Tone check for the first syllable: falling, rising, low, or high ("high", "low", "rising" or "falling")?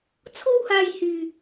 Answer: high